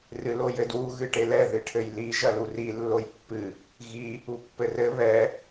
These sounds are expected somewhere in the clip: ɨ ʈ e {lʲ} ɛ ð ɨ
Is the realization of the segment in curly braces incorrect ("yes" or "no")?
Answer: yes